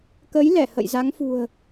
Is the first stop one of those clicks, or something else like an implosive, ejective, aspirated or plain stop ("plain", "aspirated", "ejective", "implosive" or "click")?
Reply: plain